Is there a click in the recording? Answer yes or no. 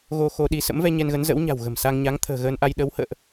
no